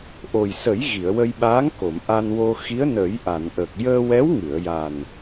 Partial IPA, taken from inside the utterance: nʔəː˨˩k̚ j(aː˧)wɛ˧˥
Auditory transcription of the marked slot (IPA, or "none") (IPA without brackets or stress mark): əː˧